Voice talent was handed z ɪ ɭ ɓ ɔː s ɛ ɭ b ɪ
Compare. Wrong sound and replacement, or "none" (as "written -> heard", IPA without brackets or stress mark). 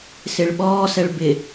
z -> s